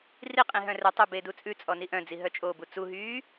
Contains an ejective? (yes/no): yes